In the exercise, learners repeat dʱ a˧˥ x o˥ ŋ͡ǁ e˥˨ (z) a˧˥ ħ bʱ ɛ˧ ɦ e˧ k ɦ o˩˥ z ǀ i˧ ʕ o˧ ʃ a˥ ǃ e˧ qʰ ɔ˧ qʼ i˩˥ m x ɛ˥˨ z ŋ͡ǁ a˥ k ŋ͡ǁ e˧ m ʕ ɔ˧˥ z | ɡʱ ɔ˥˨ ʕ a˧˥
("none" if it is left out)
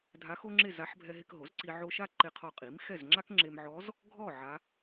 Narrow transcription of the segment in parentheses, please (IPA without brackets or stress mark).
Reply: z